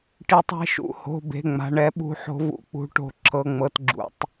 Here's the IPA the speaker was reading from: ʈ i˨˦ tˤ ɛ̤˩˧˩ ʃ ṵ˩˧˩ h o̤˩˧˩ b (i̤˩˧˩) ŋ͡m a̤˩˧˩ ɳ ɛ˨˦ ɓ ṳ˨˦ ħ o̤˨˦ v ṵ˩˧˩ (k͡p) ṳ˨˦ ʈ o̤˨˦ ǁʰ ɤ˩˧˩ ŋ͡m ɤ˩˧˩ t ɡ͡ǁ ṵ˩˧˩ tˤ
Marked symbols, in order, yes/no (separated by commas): no, yes